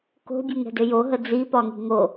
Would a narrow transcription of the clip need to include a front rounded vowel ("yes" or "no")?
yes